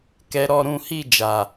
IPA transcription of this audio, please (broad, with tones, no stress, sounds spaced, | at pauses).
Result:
k ɛ˦ ɾ ɔ˦ ɾ ũ˦ h i˦˨ d͡ʒ a˨